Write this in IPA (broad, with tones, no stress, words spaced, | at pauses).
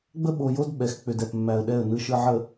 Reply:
ɡ͡bə˦ɓo˨jo˦d ɓɛ˨x k͡pʏ˨dɛ˨pmːæ˨ə̯ɗɛ˦˨ə̯ nɯ˨ʃɯ˨ʕə˨